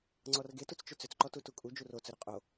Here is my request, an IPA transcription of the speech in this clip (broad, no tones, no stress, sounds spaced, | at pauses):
ŋ͡ǀ ɔ r ɡ e t u t͡s t͡ʃ ʏ t͡s ʏ t͡s ǃ ɔ t u t u kʼ u d͡ʒ u r o t͡s ɵ ɾ ʏ qʼ o